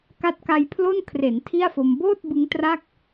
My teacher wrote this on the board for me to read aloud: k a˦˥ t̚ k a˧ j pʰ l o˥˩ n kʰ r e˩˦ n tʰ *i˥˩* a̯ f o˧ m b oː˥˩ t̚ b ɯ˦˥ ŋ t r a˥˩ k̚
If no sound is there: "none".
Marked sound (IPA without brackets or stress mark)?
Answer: i˥˩